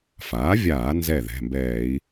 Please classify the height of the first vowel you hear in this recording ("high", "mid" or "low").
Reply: low